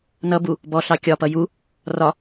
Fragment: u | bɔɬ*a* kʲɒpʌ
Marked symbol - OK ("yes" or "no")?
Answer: no